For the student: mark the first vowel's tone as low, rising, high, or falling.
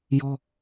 high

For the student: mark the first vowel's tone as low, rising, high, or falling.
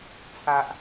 low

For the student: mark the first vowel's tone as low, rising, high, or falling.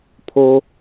high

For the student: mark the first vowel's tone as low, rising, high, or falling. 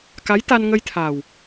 rising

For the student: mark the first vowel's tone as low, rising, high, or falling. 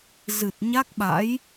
low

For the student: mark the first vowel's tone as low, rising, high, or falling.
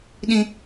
high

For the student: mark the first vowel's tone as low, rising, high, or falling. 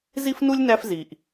high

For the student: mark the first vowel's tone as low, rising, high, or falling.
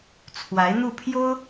rising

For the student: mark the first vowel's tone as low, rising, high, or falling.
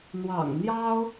low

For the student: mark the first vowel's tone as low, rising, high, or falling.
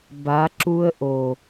rising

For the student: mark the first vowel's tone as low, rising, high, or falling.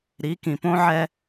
rising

